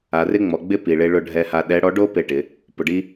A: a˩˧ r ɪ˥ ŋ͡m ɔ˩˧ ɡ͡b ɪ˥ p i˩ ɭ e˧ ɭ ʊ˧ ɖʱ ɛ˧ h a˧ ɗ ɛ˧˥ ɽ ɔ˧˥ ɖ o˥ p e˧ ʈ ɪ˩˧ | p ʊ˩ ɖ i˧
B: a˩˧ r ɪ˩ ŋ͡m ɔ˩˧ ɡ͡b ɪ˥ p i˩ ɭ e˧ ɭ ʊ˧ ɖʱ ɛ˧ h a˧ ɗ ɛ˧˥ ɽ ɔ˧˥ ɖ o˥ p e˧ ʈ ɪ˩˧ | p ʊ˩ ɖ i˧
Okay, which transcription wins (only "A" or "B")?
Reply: A